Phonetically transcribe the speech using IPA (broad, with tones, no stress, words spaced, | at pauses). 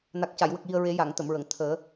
na˨˩k̚ca˨˩˨jwə˨˩k̚ji˨˩ə̯ ɹe˨˩˦ja˨˩˨ŋt̪ə˨˩˨mɹə˨˩˨ŋ t̪ʰəː˨˩˦